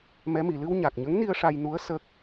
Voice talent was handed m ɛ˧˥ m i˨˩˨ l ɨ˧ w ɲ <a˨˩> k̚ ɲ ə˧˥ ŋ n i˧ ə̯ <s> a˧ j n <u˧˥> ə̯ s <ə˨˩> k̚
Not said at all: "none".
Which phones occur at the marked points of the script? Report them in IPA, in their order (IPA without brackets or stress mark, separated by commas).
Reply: a˨˩, ʂ, u˧˥, ə˦˥